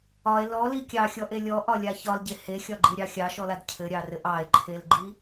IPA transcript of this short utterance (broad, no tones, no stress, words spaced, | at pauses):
ɒe̯ lɔli kʲɑxʲɔʔe lʲɔʔɒlʲa çɒlɟe hexʲɒɡ͡ǃiɾʲɑ xʲɑʃɔlad cʰɘɾʲɑrɘʔ ɑe̯ǃʰelɡ͡ǃi